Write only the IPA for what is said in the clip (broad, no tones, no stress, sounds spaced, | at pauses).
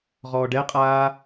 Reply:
ʁ ɔː ɖ ɛ qʼ aː